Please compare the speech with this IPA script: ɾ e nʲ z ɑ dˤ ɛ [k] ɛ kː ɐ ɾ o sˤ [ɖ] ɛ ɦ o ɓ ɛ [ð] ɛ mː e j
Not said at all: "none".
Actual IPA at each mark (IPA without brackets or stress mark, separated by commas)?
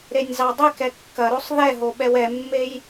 k, ð, w